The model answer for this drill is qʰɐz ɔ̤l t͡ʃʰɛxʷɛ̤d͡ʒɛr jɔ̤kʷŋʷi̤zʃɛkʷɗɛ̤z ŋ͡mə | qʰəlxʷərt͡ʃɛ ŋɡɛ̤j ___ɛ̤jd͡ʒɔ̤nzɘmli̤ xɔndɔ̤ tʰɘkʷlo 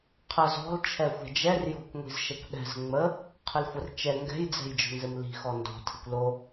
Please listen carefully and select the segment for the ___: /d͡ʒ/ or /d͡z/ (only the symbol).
d͡z